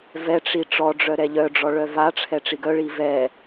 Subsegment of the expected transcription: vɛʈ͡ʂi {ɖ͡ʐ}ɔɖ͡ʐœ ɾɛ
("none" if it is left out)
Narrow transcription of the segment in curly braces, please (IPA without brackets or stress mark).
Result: ʈ͡ʂ